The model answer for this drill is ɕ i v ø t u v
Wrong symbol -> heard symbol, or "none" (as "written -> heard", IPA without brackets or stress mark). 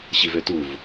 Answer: none